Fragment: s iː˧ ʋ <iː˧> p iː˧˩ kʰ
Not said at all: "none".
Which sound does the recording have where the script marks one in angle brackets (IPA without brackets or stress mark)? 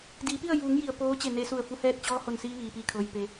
iː˩